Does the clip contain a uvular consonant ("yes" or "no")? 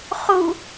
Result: yes